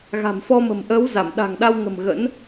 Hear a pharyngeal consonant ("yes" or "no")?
no